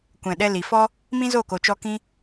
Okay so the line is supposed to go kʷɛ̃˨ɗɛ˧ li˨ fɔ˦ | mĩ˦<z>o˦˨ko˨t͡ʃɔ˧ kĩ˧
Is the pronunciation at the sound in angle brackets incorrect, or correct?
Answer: correct